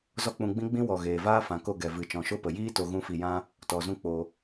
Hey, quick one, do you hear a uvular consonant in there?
no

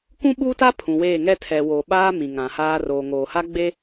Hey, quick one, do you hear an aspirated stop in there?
yes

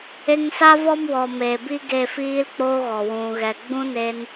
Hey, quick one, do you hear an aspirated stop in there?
no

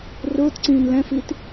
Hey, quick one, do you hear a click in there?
yes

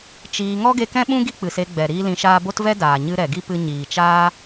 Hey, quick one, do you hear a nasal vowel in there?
yes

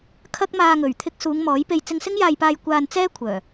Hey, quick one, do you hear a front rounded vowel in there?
yes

